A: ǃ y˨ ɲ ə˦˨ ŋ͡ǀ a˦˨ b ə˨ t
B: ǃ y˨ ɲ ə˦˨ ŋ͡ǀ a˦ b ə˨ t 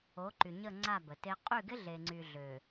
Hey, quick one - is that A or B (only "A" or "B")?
A